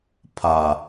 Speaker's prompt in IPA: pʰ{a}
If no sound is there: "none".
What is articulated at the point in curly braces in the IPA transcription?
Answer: a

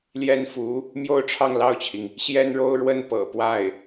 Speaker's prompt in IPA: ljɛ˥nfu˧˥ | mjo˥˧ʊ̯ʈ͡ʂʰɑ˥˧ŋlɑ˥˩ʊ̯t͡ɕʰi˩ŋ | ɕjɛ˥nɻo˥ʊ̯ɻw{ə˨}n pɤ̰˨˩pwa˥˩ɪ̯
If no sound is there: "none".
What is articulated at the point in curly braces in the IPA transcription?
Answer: ə˥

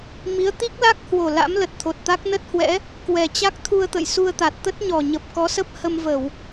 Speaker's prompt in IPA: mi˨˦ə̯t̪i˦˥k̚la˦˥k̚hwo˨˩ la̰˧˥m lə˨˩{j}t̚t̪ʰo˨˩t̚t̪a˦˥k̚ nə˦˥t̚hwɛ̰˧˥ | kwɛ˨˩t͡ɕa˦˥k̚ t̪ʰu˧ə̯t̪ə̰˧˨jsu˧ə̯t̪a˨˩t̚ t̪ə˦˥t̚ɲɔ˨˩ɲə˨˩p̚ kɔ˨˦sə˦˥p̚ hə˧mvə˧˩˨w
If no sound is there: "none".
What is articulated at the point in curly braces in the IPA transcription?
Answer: none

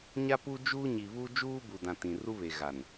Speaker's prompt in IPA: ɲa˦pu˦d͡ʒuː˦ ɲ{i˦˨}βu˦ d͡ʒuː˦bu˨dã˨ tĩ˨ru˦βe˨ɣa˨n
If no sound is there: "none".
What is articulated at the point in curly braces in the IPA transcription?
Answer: i˨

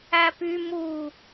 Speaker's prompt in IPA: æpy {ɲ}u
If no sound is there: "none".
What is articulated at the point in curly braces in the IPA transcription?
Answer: m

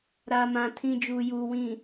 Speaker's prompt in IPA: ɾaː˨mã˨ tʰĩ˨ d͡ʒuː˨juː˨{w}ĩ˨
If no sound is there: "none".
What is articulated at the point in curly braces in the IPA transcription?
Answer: w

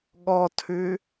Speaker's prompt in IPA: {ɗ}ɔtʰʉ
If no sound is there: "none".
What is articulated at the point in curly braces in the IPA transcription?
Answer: ɠ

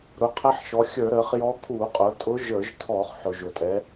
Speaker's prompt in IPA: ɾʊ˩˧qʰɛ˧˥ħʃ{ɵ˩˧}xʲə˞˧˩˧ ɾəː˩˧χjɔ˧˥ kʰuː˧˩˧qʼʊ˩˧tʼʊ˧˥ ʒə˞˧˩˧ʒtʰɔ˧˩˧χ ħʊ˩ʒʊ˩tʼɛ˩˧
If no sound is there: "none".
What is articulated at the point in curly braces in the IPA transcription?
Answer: ɔ˩˧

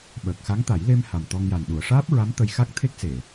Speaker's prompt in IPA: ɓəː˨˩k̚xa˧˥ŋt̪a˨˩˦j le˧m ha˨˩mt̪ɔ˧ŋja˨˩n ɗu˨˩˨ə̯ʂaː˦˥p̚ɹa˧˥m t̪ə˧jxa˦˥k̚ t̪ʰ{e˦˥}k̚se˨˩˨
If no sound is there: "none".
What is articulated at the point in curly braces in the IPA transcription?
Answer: e˦˥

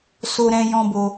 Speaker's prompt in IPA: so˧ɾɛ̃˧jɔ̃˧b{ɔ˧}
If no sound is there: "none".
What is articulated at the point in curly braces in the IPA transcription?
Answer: o˧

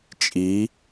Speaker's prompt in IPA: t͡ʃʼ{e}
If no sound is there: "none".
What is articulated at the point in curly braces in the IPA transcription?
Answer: i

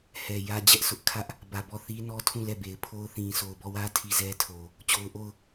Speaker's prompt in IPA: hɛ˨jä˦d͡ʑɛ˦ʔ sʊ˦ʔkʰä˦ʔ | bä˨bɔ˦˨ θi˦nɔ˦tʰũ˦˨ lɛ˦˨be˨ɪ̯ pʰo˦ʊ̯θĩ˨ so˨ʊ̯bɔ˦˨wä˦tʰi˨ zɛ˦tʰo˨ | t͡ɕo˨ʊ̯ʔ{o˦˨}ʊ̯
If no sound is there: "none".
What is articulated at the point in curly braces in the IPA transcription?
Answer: o˦˨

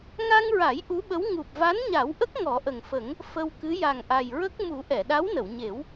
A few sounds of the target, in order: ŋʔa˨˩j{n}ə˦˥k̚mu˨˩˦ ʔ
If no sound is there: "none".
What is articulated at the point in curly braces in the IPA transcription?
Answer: ɹ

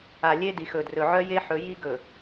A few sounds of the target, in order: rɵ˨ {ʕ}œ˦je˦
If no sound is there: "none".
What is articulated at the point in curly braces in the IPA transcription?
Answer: ʕ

